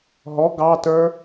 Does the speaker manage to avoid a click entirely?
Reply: yes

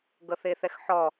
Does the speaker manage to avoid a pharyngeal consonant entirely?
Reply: no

